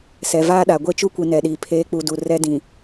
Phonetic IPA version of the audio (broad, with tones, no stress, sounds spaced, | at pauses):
s ɛ˨ v aː˦ ɗ a˨ ɡʷ e˦˨ t͡ʃ u˦ kʷ i˨ n ɛ˨ ɗ i˨ pʰ eː˨˦ k͡p u˨ d u˨ r ɛ˦ d ĩ˨